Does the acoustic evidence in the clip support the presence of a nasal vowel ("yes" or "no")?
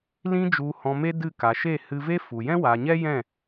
yes